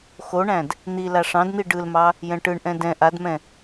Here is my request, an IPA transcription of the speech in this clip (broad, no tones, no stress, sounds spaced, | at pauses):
x o ɳ æ̃ d | n̪ i l a ʂ ɑ̃ d n̪ i ɖ ɯ l m ɑ | j ɛ̃ ʈ ɯ ɳ ʔ ɛ̃ d ɛ̃ ʔ a d m ɛ̃